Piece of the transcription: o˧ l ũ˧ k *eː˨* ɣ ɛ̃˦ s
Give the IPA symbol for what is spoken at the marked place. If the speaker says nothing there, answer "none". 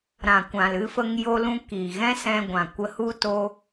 iː˨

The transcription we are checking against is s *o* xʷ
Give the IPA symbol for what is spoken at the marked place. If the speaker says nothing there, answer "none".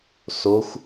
o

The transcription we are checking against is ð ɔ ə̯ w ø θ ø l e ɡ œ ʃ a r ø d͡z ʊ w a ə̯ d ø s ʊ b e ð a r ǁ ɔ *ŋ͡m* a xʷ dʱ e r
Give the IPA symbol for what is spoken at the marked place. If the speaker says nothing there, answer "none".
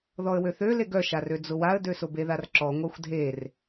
ŋʷ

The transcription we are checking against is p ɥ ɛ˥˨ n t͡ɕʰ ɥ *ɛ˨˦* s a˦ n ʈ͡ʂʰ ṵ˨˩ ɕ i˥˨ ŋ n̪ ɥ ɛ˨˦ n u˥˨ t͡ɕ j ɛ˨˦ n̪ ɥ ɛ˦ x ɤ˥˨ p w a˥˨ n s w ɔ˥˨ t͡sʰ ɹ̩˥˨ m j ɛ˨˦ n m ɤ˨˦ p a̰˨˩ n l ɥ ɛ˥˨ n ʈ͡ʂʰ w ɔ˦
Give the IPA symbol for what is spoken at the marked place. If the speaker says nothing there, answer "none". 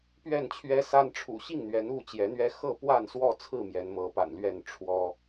ɛ˦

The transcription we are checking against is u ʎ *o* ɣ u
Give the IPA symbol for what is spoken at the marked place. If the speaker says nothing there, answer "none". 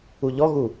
ɔ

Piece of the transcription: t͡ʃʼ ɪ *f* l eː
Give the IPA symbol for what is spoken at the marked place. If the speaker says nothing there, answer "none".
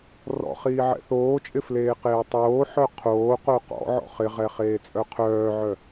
f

